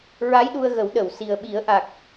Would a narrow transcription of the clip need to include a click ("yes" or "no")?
no